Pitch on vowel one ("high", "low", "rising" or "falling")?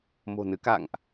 low